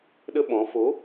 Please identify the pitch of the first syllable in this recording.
high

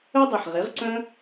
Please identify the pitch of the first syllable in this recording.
high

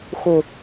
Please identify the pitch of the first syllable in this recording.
low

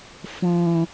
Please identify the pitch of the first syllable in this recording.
low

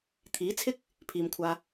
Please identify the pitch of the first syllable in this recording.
rising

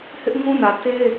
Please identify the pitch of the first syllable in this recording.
high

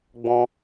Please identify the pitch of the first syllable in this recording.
high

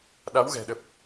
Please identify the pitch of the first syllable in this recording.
rising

